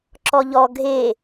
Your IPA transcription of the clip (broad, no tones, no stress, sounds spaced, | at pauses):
ǁ ɔ ʎ ɔ ɡʱ e